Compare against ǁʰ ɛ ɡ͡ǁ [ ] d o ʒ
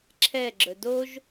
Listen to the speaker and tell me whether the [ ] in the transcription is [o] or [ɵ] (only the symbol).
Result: ɵ